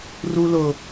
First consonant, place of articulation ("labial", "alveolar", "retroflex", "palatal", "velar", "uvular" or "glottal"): alveolar